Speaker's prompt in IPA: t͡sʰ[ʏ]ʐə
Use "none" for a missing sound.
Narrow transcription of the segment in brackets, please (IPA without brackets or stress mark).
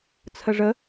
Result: ə